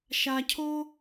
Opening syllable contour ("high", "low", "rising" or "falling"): low